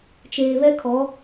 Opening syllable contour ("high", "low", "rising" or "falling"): low